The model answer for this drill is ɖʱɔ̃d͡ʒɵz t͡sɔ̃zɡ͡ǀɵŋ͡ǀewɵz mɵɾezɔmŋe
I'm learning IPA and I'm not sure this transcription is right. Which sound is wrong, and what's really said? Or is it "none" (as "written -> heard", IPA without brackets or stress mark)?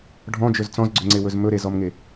none